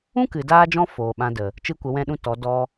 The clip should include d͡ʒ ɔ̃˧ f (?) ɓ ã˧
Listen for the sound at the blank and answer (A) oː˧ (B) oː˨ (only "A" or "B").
B